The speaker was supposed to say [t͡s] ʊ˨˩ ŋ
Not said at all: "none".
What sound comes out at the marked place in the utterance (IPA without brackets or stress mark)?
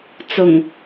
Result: t͡s